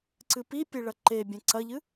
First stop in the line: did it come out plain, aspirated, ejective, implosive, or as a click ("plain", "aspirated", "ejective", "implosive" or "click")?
click